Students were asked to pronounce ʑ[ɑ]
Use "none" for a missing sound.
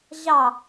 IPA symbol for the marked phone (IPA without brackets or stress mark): ɑ